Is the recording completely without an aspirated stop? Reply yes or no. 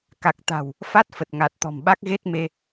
yes